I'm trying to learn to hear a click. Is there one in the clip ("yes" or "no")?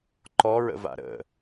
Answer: yes